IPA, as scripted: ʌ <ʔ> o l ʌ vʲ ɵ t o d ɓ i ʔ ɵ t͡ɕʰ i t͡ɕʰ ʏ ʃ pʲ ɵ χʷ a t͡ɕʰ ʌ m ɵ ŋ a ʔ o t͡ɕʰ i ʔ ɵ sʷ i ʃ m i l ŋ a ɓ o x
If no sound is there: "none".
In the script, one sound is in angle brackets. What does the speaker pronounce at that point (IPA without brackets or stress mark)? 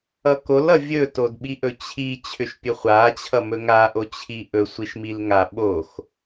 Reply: k